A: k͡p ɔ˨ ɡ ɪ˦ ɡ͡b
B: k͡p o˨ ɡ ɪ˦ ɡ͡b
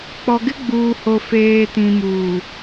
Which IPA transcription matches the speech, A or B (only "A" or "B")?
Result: A